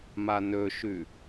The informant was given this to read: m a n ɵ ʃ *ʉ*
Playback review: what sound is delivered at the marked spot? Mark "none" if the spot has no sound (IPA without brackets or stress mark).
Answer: ʉ